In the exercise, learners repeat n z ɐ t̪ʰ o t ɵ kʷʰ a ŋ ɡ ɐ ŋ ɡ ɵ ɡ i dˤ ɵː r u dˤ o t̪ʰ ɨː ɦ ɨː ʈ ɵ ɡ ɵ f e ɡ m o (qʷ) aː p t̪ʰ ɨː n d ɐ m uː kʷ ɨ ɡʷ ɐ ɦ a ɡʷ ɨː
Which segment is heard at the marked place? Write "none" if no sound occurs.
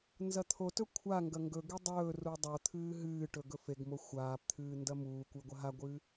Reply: xʷ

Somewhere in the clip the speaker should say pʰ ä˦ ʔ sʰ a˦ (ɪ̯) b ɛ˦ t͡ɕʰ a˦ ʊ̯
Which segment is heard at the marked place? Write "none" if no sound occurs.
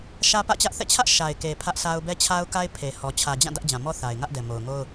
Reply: ʊ̯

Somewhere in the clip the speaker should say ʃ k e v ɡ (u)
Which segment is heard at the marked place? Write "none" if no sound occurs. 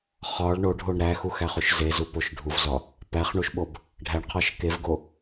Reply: o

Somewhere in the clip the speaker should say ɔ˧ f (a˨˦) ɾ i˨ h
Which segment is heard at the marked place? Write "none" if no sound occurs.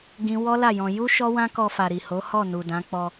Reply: a˨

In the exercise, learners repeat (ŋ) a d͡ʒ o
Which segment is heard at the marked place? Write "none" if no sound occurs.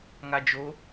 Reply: ŋ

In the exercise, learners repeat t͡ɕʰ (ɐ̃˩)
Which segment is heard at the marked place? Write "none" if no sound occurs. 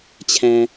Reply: æ̃˩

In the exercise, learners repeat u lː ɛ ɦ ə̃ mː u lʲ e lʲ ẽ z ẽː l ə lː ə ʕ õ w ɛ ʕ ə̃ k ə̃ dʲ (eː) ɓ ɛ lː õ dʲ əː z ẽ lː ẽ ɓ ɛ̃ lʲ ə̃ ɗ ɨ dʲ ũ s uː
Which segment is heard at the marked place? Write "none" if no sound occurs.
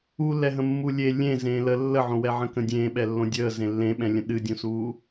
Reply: ẽː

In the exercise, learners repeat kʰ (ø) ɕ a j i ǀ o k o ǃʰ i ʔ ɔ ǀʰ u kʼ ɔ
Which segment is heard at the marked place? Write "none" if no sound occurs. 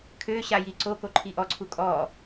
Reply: ø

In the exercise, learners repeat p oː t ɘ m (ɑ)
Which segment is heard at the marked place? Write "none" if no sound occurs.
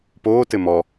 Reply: ɔ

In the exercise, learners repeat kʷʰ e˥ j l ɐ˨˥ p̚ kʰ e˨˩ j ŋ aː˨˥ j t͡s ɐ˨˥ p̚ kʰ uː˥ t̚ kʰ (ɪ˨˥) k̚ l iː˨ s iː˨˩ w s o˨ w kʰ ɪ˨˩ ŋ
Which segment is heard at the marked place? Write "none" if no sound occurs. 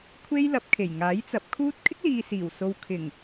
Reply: ɪ˥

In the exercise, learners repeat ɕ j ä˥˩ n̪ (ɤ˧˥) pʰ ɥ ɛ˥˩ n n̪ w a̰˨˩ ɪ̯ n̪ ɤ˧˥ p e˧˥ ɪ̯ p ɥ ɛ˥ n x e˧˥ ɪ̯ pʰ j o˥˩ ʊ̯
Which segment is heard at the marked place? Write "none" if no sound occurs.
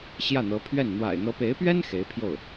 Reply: ɤ˧˥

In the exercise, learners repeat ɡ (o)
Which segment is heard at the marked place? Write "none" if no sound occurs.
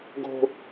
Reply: o̤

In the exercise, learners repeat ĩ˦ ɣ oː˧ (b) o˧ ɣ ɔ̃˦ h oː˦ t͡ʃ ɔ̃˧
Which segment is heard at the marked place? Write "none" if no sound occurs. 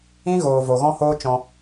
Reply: v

